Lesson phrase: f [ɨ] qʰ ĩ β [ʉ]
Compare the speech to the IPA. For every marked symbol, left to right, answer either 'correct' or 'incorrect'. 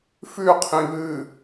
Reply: incorrect, incorrect

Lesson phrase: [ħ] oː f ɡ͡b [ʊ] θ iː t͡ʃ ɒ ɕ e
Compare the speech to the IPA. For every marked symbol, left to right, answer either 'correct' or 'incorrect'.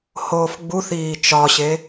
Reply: incorrect, incorrect

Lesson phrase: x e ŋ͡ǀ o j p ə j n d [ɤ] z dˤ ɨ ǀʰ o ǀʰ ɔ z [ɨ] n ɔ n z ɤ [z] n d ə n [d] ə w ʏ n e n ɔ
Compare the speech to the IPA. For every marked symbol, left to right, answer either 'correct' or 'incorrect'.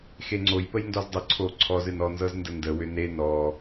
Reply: incorrect, correct, correct, correct

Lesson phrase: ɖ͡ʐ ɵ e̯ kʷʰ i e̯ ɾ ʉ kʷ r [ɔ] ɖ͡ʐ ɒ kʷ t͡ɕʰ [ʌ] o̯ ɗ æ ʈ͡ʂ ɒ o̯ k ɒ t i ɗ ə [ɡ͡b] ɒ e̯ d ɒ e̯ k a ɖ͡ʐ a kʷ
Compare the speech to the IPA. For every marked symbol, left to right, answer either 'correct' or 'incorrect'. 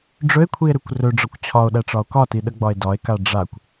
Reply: incorrect, incorrect, correct

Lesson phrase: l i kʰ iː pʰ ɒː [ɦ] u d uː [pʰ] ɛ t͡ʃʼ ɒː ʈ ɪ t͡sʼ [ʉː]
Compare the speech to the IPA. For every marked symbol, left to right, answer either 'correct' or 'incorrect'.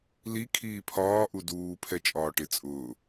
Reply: incorrect, correct, incorrect

